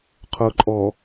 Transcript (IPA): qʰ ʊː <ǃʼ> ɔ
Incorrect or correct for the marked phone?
correct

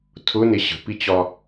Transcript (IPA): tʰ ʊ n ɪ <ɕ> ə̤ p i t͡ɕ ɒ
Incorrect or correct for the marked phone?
correct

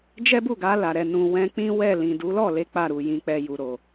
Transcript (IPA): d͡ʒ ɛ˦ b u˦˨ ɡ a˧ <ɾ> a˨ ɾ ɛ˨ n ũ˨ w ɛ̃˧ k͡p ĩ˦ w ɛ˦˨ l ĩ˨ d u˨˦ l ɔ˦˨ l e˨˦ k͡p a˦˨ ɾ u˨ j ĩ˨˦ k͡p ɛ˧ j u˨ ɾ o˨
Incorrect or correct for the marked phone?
incorrect: l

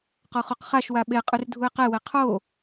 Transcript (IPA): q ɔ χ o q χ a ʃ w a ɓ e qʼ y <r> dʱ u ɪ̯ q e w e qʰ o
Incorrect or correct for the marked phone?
correct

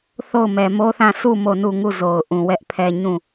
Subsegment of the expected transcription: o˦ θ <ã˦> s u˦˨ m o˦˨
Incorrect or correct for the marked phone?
incorrect: ã˦˨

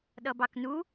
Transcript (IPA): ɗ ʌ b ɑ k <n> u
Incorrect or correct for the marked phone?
correct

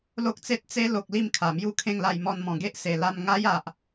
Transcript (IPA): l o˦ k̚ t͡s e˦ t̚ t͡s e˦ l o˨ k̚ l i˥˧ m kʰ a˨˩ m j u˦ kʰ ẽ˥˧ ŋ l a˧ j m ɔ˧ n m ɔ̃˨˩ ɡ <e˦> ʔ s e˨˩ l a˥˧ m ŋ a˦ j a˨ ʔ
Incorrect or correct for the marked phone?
correct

